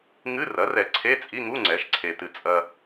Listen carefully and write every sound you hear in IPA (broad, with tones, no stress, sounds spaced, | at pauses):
ŋ ɨ˧˥˧ r ɐ˩˥ r ɛ˨ ǀʰ e˧˥˧ t͡sʼ i˧˥˧ ŋ u˧˥˧ ŋ͡ǀ ɛ˩˥ ʃ ǀʰ e˨ t ɨ˨ t͡sʼ ɐ˨